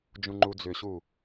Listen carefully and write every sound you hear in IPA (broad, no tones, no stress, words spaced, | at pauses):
d͡ʒũŋ͡ǃud͡zʏɕu